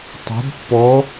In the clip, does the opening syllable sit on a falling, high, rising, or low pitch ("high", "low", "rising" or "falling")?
rising